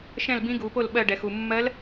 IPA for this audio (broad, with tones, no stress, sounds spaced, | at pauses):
ʃ ɛ̃˥˩ l b ĩ˧˥ ɡ u˩˧ p o˥˩ l ɓ ɜ˧˩ ɖ ɛ˩ x u˩ mː ɜ˧˥ l